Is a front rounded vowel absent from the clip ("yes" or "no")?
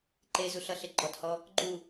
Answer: yes